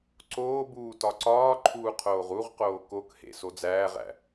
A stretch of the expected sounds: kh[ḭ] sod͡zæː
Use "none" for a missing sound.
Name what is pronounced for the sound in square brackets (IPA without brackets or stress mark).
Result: ḛ